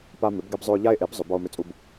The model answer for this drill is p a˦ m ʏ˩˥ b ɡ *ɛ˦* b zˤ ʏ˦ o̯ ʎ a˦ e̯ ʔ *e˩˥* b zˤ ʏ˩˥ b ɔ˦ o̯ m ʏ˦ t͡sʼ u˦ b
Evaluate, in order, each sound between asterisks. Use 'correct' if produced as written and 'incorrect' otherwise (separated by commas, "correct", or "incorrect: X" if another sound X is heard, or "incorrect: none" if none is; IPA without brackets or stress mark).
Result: correct, correct